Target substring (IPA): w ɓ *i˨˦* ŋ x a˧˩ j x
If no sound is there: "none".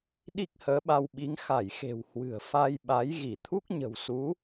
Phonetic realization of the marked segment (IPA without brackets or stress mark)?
i˨˦